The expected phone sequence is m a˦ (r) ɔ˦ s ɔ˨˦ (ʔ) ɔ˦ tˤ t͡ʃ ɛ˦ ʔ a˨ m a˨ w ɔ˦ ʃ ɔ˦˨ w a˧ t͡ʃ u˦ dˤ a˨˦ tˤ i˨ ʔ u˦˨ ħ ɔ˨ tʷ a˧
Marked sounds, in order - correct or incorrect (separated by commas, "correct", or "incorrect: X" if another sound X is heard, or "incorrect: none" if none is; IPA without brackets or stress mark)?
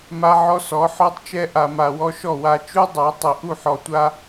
incorrect: ʕ, incorrect: ħ